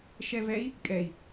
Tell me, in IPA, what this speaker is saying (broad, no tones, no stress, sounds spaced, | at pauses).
ʃ ɛ v ɛ i̯ | kʼ ɛ i̯